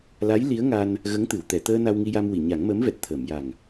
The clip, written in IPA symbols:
l a˧˥ j l i˧˥ ə̯ ŋ a˧ n | ɣ ə˧˥ ŋ t̪ ɨ˨˩˨ w t̪ ɛ˨˩˨ t̪ əː˧ n a˧ w ŋ i˧ j a˧ m w i˨˩˨ ɲ a˨˩˦ ŋ m əː˧˥ m v ɛ˨˩ t̚ t̪ʰ əː˨˩˨ m j a˨˩ ŋ

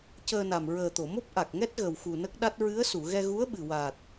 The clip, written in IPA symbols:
c əː˧ n a˨˩ m ɹ əː˨˩ t̪ o˨˩˨ m o˦˥ p̚ ʔ a˨˩ k̚ ŋ ɛ˦˥ t̚ ɣ ə˨˩ w x u˨˩ n ə˦˥ k̚ ɗ a˦˥ t̚ ɹ ɨ˧˥ ə̯ s u˨˩˨ ɣ ɛ˧ ɣ u˧˥ ə̯ ɓ ɨ˨˩ w a˨˩ t̚

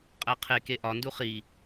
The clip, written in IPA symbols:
qʼ æ qʰ e k e ʔ ɒ n d u χ i

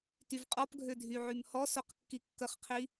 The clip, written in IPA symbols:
t y v qʼ ɔ p ɡʱ ø dʱ y ʕ y m h ɔ s o q kː i kː ə χ qʰ i

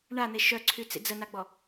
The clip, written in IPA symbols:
ɳ a n̪ e ʃ œ ǀʰ y t͡s ḭ d͡z ə n a ɡ͡b ɔ

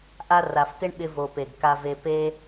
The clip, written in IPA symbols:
ʔ a˧ r a˨ f t ɪ˦ ɳ ɓ ɪ˧ v o˨ p e˨ ɡ k a˧ v e˧ p e˦

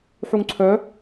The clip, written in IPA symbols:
ħ u ŋ ǀʰ œ

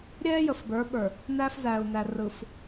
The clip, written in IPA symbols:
ɾʲ ɛː˦ j ə˨ f b ə˞˨˦ ɓ ə˞˨ | n æ˦ f z æ˨ u̯ n æ˨ r ɯ˨ f

